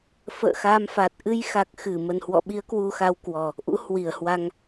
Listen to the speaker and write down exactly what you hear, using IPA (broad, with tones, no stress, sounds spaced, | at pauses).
f ə̰ː˧˨ x a˧ m f a˨˩ t̚ ʔ ɨ˧ j x a˨˩ k̚ x ɨ˧˩ m ə˨˩ n h w ɔ̰˧˨ ɓ i˨˦ ə̯ k w u˧ x a˧ w k w ɔ˨˩ | ʔ ṵ˧˥ h w i˧˩ ə̯ h w a˧ ŋ